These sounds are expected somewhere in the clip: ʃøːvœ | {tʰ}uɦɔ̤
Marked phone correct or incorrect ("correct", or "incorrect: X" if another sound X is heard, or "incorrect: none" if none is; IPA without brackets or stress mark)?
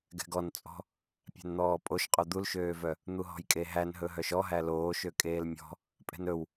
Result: incorrect: n̪